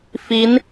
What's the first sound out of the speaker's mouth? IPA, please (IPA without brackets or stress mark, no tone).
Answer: f